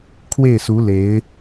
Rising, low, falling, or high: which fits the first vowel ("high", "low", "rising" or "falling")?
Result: falling